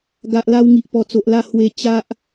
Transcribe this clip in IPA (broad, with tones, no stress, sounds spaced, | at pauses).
ɡ a˨ ʔ l a˧ w ŋ i˨ ʔ p ɔ˨˩ t͡s o˨ ʔ l a˥˧ h w e˧ t͡ɕ a˦ ʔ